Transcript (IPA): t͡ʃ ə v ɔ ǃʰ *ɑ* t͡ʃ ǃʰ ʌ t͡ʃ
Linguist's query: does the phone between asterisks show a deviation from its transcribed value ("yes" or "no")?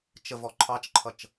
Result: no